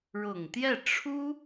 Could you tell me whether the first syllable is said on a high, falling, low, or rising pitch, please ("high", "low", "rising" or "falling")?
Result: low